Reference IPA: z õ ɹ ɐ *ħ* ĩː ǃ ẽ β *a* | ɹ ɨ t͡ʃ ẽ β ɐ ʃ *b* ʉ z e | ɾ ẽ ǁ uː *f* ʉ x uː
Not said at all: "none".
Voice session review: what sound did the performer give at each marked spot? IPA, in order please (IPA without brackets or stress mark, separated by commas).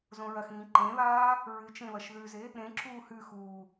x, aː, ð, h